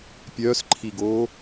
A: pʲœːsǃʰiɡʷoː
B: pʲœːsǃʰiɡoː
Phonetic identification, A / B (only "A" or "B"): B